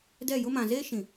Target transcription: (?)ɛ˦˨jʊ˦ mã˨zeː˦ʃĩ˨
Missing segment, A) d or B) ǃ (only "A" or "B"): A